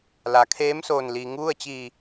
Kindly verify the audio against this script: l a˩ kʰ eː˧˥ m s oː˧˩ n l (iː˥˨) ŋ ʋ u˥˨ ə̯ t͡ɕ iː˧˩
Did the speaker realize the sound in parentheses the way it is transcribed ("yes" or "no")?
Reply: no